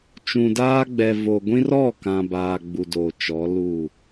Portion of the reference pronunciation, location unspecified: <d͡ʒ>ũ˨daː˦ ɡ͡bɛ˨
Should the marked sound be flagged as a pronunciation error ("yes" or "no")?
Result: yes